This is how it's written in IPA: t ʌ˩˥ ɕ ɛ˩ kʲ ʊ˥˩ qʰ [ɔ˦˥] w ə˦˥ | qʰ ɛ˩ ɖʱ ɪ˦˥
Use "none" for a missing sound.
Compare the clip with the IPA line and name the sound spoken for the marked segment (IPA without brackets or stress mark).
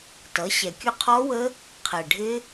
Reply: ɔ˦˥